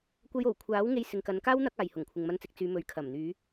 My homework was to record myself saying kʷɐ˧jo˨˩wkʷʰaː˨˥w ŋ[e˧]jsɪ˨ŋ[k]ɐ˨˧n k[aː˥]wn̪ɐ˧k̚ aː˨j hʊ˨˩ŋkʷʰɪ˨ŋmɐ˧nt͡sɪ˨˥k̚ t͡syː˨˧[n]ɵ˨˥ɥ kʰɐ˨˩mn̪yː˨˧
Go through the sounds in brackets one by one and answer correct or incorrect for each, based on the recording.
correct, correct, correct, incorrect

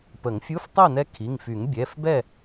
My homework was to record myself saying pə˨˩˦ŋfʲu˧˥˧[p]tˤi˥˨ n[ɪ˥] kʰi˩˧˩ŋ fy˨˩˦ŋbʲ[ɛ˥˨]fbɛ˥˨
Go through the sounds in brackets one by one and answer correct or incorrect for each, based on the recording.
incorrect, incorrect, incorrect

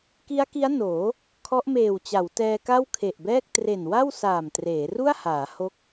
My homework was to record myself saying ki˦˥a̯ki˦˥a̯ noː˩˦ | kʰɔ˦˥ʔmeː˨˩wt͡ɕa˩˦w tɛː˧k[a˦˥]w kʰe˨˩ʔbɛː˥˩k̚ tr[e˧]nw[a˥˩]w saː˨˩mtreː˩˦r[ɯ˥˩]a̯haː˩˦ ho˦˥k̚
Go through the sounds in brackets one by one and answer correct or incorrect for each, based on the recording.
incorrect, incorrect, correct, incorrect

